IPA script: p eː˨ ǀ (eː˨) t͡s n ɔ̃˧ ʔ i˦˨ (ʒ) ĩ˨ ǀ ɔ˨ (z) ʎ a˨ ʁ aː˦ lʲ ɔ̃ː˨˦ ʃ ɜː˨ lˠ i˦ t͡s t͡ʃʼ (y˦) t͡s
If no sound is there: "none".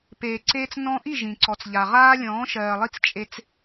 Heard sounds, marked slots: eː˧, ʒ, t͡s, e˦

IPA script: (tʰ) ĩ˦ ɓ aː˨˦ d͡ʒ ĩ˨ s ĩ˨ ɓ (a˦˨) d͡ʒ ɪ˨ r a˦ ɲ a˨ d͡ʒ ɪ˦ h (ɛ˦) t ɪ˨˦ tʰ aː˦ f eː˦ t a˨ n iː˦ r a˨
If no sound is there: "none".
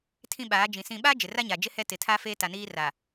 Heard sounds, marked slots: tʰ, a˦, ɛ˦

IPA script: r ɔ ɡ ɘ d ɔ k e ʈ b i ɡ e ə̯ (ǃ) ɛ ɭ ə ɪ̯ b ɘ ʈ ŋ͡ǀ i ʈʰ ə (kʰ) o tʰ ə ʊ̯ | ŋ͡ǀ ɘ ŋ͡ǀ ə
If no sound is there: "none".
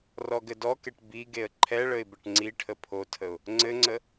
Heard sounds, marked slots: ǃʰ, pʰ

